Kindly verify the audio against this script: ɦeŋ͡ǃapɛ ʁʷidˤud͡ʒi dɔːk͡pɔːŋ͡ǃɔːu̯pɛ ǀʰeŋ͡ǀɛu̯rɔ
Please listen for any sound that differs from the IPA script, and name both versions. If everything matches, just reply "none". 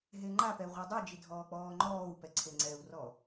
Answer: d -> dʱ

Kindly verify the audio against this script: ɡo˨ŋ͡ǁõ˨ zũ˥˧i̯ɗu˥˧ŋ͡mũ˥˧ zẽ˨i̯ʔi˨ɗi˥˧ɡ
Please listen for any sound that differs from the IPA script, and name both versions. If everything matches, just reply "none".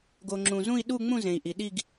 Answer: õ˨ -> ũ˨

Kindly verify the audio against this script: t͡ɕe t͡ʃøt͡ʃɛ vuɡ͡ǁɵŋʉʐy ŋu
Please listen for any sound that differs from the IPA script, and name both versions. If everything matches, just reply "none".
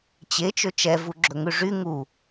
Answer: none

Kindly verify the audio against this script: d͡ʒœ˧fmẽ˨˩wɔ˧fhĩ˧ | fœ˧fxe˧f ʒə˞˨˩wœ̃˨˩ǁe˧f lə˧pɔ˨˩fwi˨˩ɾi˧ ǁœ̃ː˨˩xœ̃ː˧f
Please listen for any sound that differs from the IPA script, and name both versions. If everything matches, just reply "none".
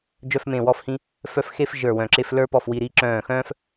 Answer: ə˧ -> ə˞˧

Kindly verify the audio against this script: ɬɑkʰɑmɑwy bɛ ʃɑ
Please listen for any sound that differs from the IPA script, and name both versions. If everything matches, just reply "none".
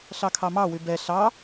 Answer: ʃ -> ɬ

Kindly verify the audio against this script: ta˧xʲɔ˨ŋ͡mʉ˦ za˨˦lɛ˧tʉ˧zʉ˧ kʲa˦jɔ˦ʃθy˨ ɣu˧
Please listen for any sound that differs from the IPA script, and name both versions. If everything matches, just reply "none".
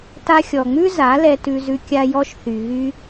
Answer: u˧ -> y˧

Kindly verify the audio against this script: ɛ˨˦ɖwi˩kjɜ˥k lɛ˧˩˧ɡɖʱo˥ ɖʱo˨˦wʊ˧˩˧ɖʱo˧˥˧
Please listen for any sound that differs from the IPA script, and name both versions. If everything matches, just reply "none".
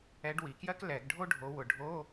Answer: none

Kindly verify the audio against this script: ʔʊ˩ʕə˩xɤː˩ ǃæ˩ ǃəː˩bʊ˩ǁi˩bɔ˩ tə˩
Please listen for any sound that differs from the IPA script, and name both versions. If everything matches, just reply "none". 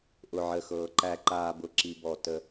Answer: əː˩ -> aː˩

